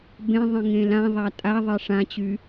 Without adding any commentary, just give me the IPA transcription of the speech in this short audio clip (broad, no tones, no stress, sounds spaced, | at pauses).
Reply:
b ẽ ðˤ ə̃ ŋ ẽ l ã ðˤ a tʼ a ðˤ e ʂ ã t͡ɕ y